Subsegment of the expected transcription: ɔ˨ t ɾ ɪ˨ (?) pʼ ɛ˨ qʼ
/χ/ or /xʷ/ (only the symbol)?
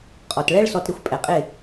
xʷ